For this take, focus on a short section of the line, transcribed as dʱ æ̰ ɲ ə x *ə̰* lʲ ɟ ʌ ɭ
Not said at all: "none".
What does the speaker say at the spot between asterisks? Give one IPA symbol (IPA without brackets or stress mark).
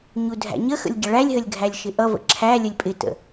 ə̰